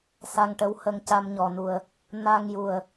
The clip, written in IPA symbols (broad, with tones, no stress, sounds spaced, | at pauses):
s a˧ ŋ ʈ ə˧˥ w h ə˧ ŋ c a˧ m ɲ ɔ˨˩ n u˨˩ ə̯ | n a˧ ŋ j u˨˩ ə̯